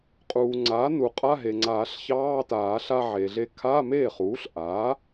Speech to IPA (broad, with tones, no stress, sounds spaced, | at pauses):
qʼ uː˩ ŋ͡ǀ aː˩˥ n u˩ qʼ a˧˥˧ ɦ e˩ ŋ͡ǀ aː˨˩˦ ɬ ç ɑː˧˥˧ t aː˨˩˦ ɬ a˧ ʕ e˩ ɮ e˧ kʰ a˧˥˧ m eː˥˩ χ uː˩˥ ɬ ʔ aː˩˥